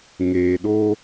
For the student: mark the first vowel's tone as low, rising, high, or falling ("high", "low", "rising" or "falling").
low